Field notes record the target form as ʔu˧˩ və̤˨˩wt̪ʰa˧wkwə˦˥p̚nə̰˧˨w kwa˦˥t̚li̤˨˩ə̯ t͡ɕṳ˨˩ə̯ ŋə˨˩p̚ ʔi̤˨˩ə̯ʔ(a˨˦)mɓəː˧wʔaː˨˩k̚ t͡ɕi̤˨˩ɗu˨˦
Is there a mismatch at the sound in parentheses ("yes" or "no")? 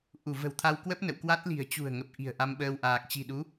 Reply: yes